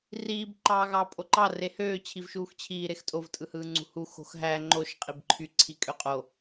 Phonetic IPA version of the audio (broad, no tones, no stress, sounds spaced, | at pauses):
r iː b ǃ ɑː ɣ ɑː pʼ o ǃ ɑ r e h øː t͡ɕʰ i v ʃ uː x t͡ɕʰ iː ɾ e x tʼ o v tʼ ɯ h ɯː ŋ͡ǀ ṳ h u x o̤ x ɦ æ ŋ͡ǃ o ʃ qʼ i b ǃʰ y ǀʰ i kʼ ø qʼ o